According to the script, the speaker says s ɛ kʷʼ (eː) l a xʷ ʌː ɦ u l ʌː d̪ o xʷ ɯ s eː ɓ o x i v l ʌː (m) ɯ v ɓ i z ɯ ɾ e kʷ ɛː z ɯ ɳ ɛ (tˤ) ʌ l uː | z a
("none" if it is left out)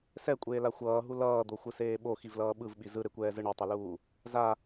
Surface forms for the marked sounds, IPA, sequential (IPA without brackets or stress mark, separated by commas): eː, ɓ, tˤ